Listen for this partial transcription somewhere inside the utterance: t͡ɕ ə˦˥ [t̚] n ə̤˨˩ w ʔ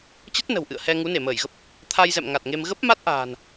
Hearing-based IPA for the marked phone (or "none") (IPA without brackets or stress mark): t̚